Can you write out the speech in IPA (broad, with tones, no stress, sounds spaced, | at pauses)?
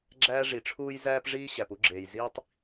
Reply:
ɡ͡ǁ æː˥ ʐ i˩ ʈ͡ʂʰ uː˥ j z æː˥ p ʐ iː˥ ɕ æ˩ p u˥ ɡ͡ǁ eː˩ j z iː˥ tˤ